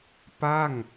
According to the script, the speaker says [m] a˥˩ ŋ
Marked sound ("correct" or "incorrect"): incorrect